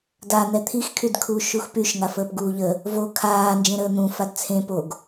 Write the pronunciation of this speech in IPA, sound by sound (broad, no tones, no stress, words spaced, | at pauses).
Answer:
dan̪ɛ t̪ʰixkʰydkʰuːʃ uxpyʃ ŋafəːpɡuːʎə | vo kʰaː nd͡ʒẽɾəːn̪ũ fadt͡sʰẽ poɡ